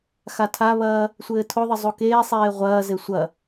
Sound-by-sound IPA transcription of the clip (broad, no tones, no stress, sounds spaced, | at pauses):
x a tʰ a β ɐː | sʷ ɘː tʰ o ðˤ ɘ zˤ u k eː sˤ eː ʁʷ ɐː z e sʷ ɐ